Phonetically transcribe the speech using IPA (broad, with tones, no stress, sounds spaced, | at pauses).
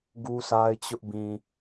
ɡ u˦ s a˦ ɪ̯ t͡ɕ ʊ˦ ʔ b ĩ˨